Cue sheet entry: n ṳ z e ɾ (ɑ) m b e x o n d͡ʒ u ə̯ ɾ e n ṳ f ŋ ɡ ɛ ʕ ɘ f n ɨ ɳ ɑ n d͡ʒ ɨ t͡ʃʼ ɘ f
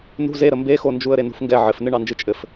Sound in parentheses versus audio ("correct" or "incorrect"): incorrect